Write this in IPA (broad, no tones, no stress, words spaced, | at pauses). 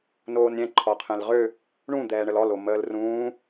noːnɾʲɛ̃ ǃʰɔqʰɛ̃lʁø | ɳũ d̪ɛːɳəlɔl oməːlrũː